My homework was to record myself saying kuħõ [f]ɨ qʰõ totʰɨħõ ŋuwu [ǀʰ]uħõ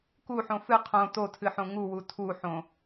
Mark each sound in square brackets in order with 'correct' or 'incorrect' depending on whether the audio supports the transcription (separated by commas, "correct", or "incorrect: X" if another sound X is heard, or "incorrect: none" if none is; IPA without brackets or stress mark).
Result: correct, incorrect: tʰ